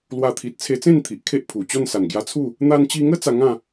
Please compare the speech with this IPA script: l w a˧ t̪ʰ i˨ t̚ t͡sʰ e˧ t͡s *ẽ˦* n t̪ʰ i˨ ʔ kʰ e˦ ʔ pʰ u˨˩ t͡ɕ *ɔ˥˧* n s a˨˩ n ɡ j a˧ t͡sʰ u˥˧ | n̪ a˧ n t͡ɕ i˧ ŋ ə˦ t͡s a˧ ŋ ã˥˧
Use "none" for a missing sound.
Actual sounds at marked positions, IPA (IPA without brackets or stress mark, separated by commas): ẽ˥˧, ɔ˥˧